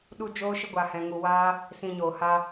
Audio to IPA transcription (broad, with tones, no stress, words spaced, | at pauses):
ɗu˦d͡ʒoː˦ ʃə˧ɡʷa˨hɛ̃˨ŋu˨ waː˦ | sĩ˧ɲoː˨ ha˧